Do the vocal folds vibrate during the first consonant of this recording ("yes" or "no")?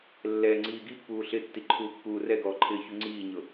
yes